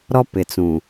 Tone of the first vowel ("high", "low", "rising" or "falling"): high